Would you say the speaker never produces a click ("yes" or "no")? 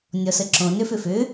no